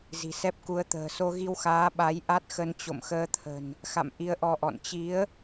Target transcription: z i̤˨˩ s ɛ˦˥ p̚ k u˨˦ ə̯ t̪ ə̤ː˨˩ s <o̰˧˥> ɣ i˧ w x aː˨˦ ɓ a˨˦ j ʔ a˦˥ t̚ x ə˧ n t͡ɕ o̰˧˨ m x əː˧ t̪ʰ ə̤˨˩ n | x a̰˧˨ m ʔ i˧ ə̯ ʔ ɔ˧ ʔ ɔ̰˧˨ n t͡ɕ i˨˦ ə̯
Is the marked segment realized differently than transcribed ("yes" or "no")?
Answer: yes